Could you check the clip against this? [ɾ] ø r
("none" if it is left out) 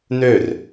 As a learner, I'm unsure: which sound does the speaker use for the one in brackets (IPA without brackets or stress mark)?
n